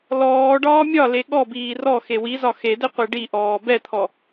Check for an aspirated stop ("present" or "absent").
present